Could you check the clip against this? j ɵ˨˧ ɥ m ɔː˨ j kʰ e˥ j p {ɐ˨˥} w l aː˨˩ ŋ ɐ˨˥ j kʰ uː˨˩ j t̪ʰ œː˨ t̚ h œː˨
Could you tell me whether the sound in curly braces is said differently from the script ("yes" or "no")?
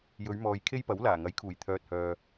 no